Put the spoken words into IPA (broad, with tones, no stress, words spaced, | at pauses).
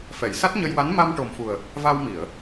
fɛ˨˩˨j sa˦˥t̚ɲə˧jwa˧˥n ma˧mʈo˨˩mfu˨˩ə̯ | va˧wmi˨˩˨ə̯